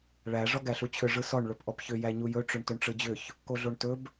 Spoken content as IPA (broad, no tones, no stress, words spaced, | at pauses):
ɭæ ʐɔɡæɬut͡ɕʰʏ ʐɯsɔɳ ɭɵpʔɔpçʏ jæɲujɵ ʈ͡ʂɵɳtɵɳʈ͡ʂɯd͡ʑʏç | koɮoɳtɵb